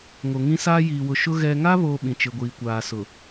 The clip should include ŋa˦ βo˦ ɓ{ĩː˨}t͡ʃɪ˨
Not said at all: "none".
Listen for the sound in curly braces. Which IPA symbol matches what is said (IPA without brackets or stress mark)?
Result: ĩ˨